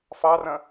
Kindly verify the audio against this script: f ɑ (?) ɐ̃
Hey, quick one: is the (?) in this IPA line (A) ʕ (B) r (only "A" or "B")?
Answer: B